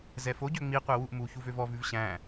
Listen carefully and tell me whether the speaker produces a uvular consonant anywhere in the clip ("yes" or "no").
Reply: yes